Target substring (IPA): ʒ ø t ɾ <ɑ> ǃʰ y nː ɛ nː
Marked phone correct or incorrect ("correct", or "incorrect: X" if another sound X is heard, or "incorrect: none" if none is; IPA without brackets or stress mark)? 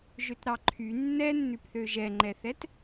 correct